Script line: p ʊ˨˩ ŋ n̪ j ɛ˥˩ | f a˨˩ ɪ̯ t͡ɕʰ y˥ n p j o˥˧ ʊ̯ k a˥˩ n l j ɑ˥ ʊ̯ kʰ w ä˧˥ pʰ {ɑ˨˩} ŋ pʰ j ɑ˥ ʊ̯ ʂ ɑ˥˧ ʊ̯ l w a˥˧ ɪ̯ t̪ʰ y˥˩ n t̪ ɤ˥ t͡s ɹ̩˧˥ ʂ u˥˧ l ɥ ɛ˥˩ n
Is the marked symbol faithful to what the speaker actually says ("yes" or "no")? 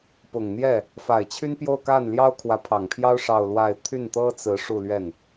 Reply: yes